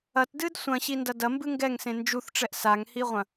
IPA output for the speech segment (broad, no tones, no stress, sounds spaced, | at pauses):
ɐ t d ɨ d sʷ ɐ̃ ɕ i n d ɐ d ɐ m b ɨ ŋ ɡ ɛ ŋ s ẽ n d͡ʒ u θ ʈ͡ʂ ɛ ʔ s a ŋ h i ʁʷ ɐ̃